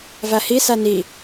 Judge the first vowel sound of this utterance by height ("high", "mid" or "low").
low